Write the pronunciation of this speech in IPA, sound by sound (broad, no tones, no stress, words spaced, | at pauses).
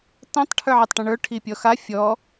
tɐ̃tˤ ʈʰə˞ʕɐtˤʈɐ̃ɳə˞ ʈʰipʲɔxa fʲɔ